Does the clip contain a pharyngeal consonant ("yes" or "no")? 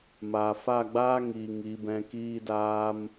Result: no